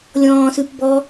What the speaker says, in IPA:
lʲɔ̃ːsʉp bɔ

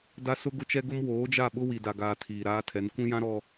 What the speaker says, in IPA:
da˦ sʊ˦ɡʊ˦t͡ʃɛ˦ɡʊ˦m woː˨˦d͡ʒa˦˨ɓʊ˦ wi˨da˨ɡaː˨ tʰiː˨ɾaː˦tʰɛ˨˦n kʷĩ˦jã˦ ɾɔ˨

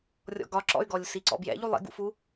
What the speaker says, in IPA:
rʲɔ̰ɡɒǁɔ̰y̯ɡɔlʲ siǀɔ̰bjɛ̰ʎu lˠḭɡṵfu

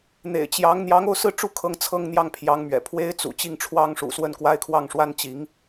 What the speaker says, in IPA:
n̪ḛ˨˩ɪ̯t͡ɕjɑ˧˥ŋ n̪jɑ˧˥ŋo˥˧ʊ̯sɹ̩˥˩ʈ͡ʂu˥ kʰɤ˥˧ŋt͡sʰɤ˥˧ŋn̪jɑ˥˩ŋ pʰjɑ˧˥ŋmɥɛ̰˨˩ pʰwe˥ɪ̯t͡sṵ˨˩ t͡ɕi˥˩ŋʈ͡ʂʰwɑ˥ŋʂṵ˨˩swə˥˩n kwa˥ɪ̯kʰwɑ˥˩ŋʂwa˥n t͡ɕi˧˥ŋ

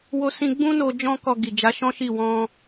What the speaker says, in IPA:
wo˧sĩ˧ɡ͡bũ˦no˧ d͡ʒɔ̃˦kɔ˧ɡi˨ d͡ʒa˨˦ʃɔ̃˦ʃi˦˨ wɔ̃˧

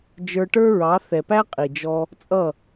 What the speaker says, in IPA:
d͡ʒə˞˧ʈə˞˦ɹɑ˨˦ θɛ˨pæ˦ qʼi˨d͡ʒɔ˧ | t͡sʼʌ˦˨

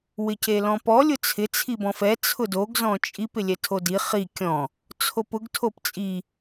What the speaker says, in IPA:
wɪcelɔ̃pɔ lʲʊt͡sʰɪ t͡sʰibɔ̃fɛ t͡sʰʊdoɡ zɔ̃t͡ʃʼip ɪlʲɛtʰodi χi kʲɔ̃ | t͡sʰopʊɡ tʰopt͡sʼi

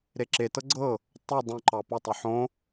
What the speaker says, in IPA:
ɾeǁe tɤɡ͡ǀɤ | tˤu dˤõǃɑ potˤɵ ħõ

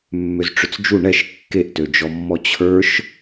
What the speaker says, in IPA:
mːøzʈ͡ʂʏt͡sd͡ʒu ɳɛʃ kːeʔtød͡ʒɔmːɔ t͡ɕʰə˞ʃ

